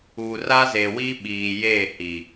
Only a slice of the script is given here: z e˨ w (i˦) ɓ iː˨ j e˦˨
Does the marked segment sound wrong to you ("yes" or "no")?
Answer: no